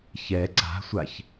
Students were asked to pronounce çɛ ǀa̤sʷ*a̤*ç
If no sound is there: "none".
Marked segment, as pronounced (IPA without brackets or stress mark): a